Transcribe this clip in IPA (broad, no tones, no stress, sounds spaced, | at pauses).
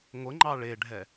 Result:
ŋʷ ə ŋ͡ǃ ɑ ɭ e ɖʱ ɛ